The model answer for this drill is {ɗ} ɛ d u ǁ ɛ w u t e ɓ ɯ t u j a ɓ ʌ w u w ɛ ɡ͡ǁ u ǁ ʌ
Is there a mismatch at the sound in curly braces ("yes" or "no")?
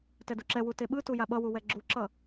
yes